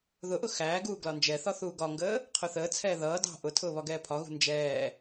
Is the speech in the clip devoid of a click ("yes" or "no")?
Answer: yes